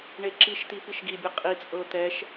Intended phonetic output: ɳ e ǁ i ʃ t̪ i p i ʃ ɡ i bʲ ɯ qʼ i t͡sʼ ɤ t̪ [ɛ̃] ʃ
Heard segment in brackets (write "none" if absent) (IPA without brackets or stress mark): ɛ